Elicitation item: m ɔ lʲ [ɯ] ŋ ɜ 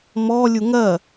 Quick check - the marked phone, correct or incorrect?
incorrect